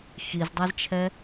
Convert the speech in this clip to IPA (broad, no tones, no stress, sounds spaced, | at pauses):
x i z dˤ ɛ z t͡ʃʰ ɛ